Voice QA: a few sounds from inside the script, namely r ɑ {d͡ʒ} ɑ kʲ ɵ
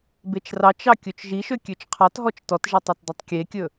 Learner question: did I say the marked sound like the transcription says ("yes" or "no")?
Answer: no